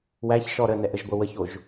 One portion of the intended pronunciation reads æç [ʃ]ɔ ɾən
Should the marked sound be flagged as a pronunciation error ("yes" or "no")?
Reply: no